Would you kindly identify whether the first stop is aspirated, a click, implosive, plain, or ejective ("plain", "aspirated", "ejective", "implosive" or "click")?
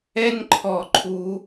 click